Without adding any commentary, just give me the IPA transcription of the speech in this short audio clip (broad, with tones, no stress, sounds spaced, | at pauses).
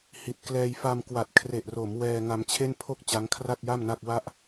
h i˨˩ t̚ k l ɛː˧ j f a˧ m k w a˨˩ t̚ kʰ r e˨˩ ʔ r o˩˦ m w ɛː˧ ŋ a˧ m t͡ɕʰ e˥˩ n pʰ o˥˩ k̚ t͡ɕ a˦˥ ŋ kʰ r a˥˩ t̚ j a˥˩ m n a˥˩ k̚ w a˥˩ ʔ